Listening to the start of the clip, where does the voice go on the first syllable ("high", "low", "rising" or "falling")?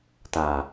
low